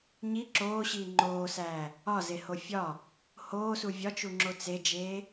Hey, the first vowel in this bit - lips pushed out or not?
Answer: no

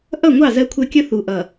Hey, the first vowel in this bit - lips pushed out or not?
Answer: no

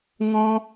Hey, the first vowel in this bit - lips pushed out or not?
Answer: yes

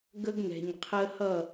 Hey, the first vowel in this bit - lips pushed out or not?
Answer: no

